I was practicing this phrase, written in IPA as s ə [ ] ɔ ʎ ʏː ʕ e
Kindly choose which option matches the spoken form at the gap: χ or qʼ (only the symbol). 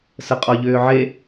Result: qʼ